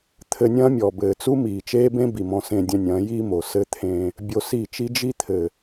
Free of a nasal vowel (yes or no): no